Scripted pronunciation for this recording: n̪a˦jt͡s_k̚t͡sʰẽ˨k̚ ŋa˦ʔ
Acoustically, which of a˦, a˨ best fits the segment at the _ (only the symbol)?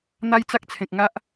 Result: a˦